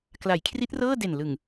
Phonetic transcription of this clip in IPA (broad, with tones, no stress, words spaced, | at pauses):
kla˩˦jkʰri˦˥t̚rɤː˥˩de˨˩n lɯ˨˩ŋ